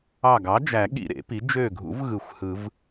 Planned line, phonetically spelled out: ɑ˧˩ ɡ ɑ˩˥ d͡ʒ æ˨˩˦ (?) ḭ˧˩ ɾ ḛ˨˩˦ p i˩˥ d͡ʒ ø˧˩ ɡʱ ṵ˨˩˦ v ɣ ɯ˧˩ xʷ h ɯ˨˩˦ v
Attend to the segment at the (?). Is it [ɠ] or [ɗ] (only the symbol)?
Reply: ɠ